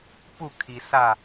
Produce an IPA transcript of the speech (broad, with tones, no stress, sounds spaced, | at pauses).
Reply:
p u˧˩ kʰ i˩ s aː˧˩